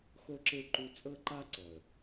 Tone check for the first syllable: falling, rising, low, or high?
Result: high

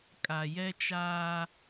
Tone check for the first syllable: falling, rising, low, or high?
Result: low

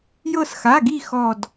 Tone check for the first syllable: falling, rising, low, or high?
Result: falling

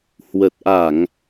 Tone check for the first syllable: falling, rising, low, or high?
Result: low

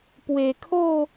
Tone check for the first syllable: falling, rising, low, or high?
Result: low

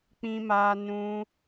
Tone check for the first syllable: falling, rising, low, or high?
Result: high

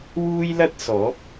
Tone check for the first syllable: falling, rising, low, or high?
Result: high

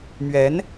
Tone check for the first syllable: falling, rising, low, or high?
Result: rising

